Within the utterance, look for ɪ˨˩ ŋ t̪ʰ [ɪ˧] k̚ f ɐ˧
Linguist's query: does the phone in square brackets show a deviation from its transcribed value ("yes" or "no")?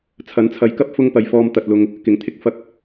no